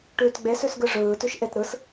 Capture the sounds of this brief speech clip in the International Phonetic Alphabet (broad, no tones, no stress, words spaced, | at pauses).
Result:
ʈʉːtɡ͡bes ʉsɡɯʐɯː tʉʃʔet ɾɯs